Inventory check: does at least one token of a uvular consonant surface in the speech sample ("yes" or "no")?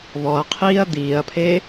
yes